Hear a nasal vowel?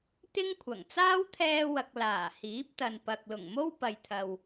no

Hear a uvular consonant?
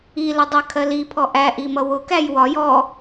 no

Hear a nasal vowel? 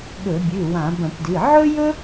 yes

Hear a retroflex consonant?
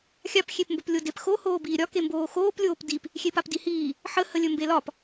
no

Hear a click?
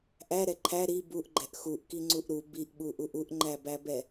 yes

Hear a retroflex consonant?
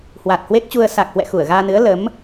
no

